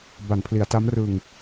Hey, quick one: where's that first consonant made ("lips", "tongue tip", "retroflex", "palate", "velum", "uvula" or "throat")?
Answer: lips